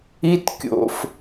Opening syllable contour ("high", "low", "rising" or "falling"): high